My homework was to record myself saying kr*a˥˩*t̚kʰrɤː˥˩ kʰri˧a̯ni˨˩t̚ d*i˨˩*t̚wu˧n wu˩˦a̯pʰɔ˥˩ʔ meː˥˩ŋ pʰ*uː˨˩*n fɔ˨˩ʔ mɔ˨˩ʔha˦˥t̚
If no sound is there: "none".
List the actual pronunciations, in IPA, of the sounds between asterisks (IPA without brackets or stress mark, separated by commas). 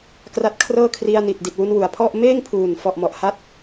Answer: a˦˥, i˨˩, uː˨˩